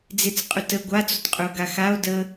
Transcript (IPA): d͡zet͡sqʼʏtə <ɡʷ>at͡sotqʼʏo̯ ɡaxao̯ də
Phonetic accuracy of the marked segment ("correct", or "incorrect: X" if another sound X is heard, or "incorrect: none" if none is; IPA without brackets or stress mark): correct